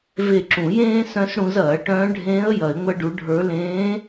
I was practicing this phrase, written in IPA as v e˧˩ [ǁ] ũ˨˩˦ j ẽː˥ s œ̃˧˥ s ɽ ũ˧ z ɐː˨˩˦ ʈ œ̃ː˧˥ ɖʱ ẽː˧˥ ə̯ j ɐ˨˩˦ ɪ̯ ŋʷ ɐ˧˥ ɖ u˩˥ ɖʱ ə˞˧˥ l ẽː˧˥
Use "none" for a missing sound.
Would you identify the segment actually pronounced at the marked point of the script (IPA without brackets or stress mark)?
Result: ǁ